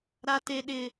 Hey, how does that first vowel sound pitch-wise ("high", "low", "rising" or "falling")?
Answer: high